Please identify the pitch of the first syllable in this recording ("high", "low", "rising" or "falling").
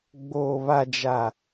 low